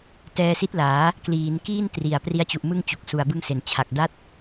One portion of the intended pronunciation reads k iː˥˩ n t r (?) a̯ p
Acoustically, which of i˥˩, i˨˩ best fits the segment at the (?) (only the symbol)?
i˨˩